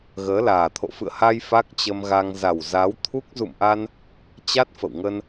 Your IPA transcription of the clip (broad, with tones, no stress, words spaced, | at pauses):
ɣəː˨˦laː˨˩t̪ʰo̰˧˨ fɨ̰˧˨ə̯ha˧j fa˦˥k̚t͡ɕə˧mɣa˧ŋ za˨˩wzaː˨˦wt̪ʰu˦˥k̚ zṵ˧˨mʔa˧n | t͡ɕa˦˥t̚ fə̰˧˨wŋə˧n